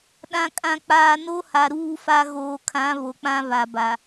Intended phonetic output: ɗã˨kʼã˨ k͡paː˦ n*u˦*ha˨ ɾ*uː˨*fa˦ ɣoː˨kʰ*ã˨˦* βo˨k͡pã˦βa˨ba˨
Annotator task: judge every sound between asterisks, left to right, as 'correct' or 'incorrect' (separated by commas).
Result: incorrect, incorrect, correct